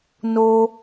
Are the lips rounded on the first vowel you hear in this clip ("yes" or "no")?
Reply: yes